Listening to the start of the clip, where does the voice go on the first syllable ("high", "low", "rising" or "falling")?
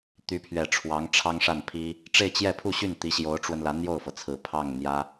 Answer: rising